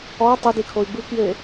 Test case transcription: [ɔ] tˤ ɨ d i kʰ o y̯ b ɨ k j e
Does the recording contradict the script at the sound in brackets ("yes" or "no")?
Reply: no